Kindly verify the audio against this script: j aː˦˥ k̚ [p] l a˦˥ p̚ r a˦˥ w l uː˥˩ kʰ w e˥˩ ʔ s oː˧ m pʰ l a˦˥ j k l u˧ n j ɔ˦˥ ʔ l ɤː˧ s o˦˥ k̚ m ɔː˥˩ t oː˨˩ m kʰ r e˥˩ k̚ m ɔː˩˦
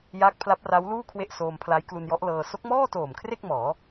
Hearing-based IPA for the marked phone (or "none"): pʰ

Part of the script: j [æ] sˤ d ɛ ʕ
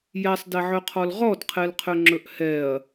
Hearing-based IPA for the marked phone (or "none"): æ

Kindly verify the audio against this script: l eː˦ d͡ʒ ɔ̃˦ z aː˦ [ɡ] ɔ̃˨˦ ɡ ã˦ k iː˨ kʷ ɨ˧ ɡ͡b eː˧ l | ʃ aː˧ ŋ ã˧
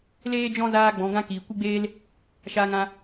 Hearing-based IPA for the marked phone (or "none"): ɡ͡b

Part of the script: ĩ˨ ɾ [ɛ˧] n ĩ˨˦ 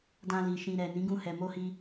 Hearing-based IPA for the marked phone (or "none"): ɛ˨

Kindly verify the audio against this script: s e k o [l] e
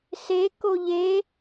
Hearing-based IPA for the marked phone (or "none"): ʎ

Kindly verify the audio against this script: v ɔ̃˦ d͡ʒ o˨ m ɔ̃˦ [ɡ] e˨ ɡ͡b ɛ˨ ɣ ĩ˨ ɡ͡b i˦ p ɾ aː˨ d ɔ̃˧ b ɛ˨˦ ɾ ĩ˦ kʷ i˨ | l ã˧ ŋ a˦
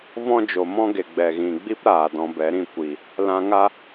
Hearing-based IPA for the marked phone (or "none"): ɡ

